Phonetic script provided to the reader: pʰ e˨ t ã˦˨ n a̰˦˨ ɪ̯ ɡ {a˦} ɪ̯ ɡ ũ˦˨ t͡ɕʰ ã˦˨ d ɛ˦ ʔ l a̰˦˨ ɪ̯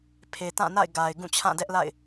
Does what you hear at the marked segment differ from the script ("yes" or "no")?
yes